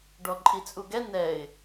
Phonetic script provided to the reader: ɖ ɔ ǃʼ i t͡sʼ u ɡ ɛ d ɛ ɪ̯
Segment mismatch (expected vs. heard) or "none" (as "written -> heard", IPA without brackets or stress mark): d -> n